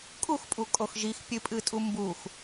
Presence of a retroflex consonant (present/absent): absent